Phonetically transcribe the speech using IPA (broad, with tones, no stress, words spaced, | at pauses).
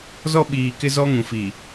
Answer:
zɔ˦ɓiː˨kɪ˦zɔ˦ ŋũ˨fiː˨